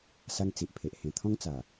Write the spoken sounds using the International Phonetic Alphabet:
s a˦ ŋ t͡s i˨ ʔ pʰ e˨ ʔ h ẽ˨˩ t̪ʰ ɔ̃˦ ŋ t͡s a˨˩

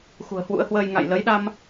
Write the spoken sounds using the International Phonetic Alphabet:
x ṳ˨˩ ə̯ h w ṵ˧˥ ə̯ h w əː˧ j ŋ a̰˧˨ j l ə˨˦ j ɗ a˧ m

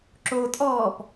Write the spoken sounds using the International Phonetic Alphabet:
ǁ o tʼ ɔː p

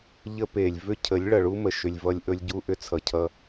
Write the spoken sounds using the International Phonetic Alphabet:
ʎ ə˦ p e˨ lʲ v ʏ˦ cʰ ə˨˦ lʲ ɭ ʌ˨ ɭ u˦ m ə˨ ʃ ʏ˨ lʲ v ʌ˧ lʲ ʔ ɵ˦ lʲ ɟ u˦ ʔ ʏ˦ t͡sʰ ʌ˨ cʰ ʌ˧

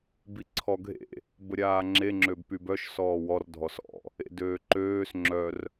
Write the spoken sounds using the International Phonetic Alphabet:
b i ǀʰ ɔ ɡʱ ḛ | b ə ɾʲ aː ŋ͡ǁ e ŋ͡ǁ ø b p y b œ ʃ s ɔː w ɔ r dʱ ɔ s ɔ̰ | ḛ d øː ǃ øː s ŋ͡ǁ œ r

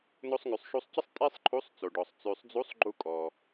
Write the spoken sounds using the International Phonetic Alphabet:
n o˧ sˤ ŋ ʉ˩ sˤ ʃ u˧ sˤ c ə˥ sˤ tʼ e˥ sˤ ǃʰ u˧˥ sˤ t͡s o˩ ɖ ɔ˩ sˤ t͡s ʉ˩ sˤ d͡z u˧˥ sˤ ɡ͡ǃ u˧ kʼ ɔ˩

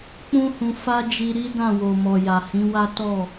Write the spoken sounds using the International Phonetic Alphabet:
k͡p ũ˦ h ũ˧ f a˦ d͡ʒ i˧ ɾ i˦ d ã˦˨ w o˨ m ɔ˨ j a˨ h ĩ˨˦ w a˦ t ɔ˦˨

